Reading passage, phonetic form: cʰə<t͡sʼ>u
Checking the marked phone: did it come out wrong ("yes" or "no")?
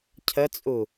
no